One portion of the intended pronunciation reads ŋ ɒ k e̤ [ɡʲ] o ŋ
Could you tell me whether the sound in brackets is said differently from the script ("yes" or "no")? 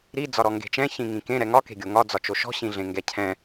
no